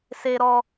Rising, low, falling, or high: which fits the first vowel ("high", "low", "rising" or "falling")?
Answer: high